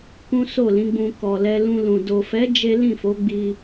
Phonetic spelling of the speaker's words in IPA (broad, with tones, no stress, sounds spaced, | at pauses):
k ũ˦ s o˦˨ l ĩ˨˦ ɡ͡b ũ˧ k ɔ˨ l ɛ˧ l ũ˧ l ũ˨ d o˨ f ɛ˨˦ d͡ʒ e˦ l ĩ˦˨ f o˨˦ ɡ͡b i˧